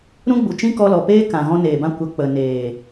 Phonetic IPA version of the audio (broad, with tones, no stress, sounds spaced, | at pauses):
ɾ ũ˦ ɡ͡b u˨ t͡ʃ ĩ˦ k ɔ˧ l ɔ˨ p eː˦ k ã˨ ɣ ɔ̃˧ n eː˨ b ã˧ kʷ ə˨ k͡p ə˨ n eː˨